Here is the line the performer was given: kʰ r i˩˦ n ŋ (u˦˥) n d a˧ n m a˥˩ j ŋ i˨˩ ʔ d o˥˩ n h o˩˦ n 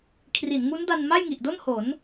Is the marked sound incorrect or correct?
correct